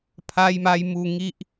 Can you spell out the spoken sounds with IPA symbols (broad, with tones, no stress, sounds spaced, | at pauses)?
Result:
pʰ a˧ j m a˧ j m u˧ ŋ i˦ ʔ